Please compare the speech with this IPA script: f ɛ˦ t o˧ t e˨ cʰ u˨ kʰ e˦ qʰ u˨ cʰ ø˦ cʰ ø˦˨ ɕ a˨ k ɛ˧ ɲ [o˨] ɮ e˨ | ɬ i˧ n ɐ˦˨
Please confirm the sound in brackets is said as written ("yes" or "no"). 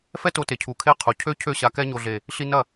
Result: yes